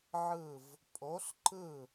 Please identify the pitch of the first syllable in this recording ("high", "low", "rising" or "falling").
falling